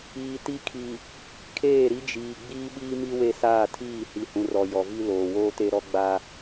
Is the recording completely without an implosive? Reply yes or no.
no